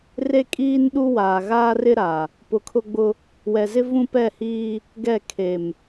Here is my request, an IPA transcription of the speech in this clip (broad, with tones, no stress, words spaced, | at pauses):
re˦kʼiː˦nɗu˦ waː˨ɣaː˦rɪ˦ɾa˨ | pʊ˨ kʰʊ˦ɡ͡bʊ˦ | wɛ˨zɪ˦ vũ˦pɛ˦˨hiː˦ | ɡɛ˦˨kʰe˨m